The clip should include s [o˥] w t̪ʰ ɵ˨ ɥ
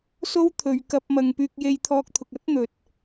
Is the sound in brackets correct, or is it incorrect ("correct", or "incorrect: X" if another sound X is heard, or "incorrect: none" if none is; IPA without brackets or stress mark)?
correct